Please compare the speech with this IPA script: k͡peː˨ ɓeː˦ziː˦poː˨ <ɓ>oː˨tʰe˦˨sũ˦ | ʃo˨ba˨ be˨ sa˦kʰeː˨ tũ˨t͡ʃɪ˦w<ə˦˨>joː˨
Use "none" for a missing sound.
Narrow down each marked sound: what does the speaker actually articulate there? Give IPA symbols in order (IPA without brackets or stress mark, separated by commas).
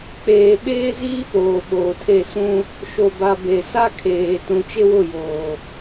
ɓ, ʊ˦˨